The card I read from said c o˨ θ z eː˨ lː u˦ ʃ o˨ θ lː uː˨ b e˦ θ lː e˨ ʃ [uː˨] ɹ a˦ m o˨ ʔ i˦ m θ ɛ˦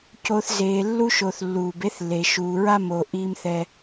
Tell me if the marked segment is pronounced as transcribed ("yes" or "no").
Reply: yes